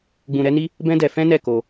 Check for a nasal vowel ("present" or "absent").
present